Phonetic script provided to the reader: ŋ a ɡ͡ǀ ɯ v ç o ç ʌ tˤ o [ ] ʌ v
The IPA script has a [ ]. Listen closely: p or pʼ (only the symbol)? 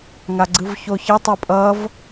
pʼ